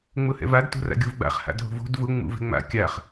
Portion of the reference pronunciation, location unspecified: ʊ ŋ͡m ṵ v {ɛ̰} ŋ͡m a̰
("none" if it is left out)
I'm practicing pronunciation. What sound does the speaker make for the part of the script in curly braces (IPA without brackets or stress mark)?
ɛ̤